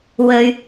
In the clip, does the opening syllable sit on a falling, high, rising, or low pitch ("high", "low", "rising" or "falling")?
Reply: low